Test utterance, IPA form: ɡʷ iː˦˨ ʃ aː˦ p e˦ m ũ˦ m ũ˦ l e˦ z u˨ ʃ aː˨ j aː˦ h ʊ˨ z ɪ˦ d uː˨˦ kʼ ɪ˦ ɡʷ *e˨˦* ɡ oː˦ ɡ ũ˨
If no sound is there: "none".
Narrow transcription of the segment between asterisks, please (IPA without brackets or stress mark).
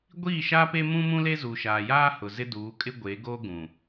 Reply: e˨˦